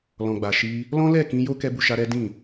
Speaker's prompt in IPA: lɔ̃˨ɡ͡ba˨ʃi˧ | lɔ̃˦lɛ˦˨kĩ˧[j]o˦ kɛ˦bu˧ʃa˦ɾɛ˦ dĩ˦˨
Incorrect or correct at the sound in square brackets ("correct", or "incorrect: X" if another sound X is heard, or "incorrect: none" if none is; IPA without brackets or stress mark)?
correct